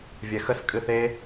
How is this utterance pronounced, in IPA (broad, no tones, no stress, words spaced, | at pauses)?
vʲɛxəs kʼɨθe